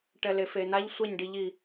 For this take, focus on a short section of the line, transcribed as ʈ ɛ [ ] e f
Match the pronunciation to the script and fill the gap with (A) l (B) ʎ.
A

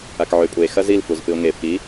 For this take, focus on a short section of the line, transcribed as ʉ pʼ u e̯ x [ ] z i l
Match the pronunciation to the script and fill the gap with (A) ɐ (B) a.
A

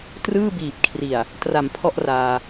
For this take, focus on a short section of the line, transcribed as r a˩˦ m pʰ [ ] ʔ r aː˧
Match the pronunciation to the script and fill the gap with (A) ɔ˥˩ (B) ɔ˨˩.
A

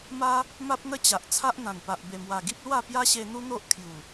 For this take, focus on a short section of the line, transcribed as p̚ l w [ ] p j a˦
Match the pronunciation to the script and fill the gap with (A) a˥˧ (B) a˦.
A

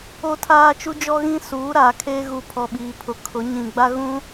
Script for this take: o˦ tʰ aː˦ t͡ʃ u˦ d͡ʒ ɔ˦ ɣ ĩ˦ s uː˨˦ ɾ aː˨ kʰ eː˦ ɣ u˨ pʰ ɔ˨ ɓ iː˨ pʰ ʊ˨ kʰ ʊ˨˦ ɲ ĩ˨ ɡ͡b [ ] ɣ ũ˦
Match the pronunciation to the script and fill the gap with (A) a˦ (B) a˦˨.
A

